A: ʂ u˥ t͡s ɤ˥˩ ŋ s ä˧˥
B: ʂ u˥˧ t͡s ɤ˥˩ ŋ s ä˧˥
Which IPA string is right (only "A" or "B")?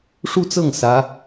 B